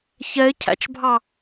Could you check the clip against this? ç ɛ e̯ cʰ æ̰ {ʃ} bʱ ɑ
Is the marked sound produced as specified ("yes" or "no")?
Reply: no